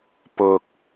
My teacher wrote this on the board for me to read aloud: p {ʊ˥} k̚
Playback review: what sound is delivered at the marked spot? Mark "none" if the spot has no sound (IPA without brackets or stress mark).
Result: ʊ˨